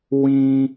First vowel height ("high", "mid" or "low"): high